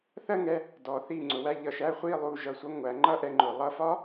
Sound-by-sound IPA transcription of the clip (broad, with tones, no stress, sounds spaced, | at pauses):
θ ɜ˥˧ ŋ ɛ˧ | d ɔ˩˧ θ i˧˩ ŋ͡ǀ ʊ˩˧ w æ˧ ʎ ʌ˧˩ ʃ æ˥ χʷ i˥˧ lˠ u˧˩ ʒ ʌ˧˩ sʷ ʌ˥˧ ŋʷ æ˩˧ ŋ͡ǃ ʌ˥˧ ʔ ɛ˧ ŋ͡ǃ ʊ˩˧ lˠ ʌ˧ f ɒ˥